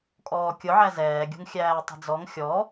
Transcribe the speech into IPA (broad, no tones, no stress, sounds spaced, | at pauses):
kʼ ɔː kʲ ʊ ʕ æ z ɛː ɡʲ ṳ ŋ xʲ æː tˤ ə̤ d͡z ɔ ŋ xʲ ɔ